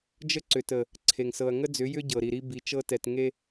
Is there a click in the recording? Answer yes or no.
yes